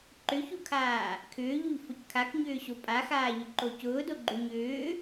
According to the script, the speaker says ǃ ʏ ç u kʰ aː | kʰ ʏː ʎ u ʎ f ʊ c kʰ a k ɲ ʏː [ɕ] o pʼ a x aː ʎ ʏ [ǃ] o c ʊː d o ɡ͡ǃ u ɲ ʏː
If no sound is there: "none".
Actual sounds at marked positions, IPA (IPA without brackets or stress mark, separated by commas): ɕ, ǃ